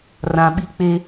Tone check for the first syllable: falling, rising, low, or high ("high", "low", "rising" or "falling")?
low